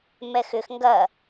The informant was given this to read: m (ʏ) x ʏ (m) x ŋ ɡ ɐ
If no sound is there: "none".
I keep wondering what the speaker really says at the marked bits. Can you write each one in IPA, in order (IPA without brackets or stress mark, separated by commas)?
ɛ, none